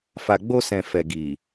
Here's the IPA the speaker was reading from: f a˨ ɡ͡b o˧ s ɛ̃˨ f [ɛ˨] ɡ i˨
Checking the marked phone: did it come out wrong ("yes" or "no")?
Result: no